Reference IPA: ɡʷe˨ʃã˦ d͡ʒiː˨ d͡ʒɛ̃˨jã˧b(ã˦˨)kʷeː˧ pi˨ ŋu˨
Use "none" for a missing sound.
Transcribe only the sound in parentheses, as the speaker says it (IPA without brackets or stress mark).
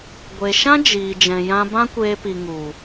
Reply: ã˦